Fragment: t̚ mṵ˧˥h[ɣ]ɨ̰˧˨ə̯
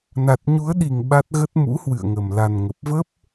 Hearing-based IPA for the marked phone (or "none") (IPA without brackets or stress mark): w